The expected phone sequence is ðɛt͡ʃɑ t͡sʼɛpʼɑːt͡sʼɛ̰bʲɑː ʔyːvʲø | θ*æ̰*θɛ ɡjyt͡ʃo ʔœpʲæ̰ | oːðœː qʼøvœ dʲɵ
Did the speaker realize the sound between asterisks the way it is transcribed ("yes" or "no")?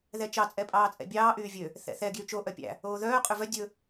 no